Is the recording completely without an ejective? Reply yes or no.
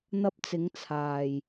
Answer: yes